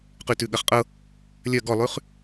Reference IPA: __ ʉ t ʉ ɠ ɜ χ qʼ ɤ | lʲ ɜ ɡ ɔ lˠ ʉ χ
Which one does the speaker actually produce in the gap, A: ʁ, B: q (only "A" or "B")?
B